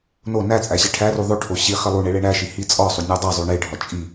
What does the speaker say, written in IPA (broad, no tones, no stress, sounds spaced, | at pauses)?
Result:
n o n æ t͡sʼ æ ɕ e ʈʰ æ r u ðˤ o ʈʰ o ɕ i χ i lˠ u ɳ e ɭ e ɳ æ ʃ i h i t͡sʼ ɒ sˤ u nʲ ɒ dˤ æ zˤ u ɳ e ɖʱ ɒ t͡ʃʼ i